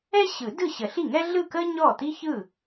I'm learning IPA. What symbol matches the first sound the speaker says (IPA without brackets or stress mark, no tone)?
ɛ